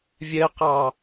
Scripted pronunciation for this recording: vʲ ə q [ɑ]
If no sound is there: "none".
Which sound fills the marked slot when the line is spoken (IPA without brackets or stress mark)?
ɑ